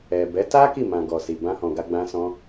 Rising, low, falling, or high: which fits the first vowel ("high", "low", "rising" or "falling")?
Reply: low